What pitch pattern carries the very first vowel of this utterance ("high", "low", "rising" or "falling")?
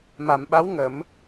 low